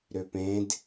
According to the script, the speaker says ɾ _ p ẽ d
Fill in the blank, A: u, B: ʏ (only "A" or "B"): B